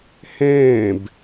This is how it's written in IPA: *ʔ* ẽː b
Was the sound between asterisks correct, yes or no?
no